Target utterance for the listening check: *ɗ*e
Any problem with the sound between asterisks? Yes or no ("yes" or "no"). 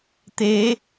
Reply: yes